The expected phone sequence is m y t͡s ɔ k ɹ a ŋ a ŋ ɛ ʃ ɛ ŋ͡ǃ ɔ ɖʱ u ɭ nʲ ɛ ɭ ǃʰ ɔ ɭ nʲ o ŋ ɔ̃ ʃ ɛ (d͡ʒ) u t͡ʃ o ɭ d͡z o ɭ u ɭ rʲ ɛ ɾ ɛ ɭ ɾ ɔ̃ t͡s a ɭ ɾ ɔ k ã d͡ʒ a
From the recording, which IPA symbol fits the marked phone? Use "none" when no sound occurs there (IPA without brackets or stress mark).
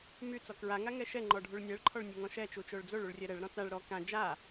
t͡ʃ